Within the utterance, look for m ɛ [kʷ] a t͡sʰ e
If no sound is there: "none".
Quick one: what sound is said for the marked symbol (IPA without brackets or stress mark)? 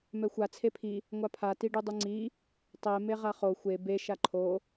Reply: xʷ